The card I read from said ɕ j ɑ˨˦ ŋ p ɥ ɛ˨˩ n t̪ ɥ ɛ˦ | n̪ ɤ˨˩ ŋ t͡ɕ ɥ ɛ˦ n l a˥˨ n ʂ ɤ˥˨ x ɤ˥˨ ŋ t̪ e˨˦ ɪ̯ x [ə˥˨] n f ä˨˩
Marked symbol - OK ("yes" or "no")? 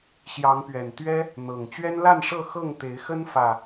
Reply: no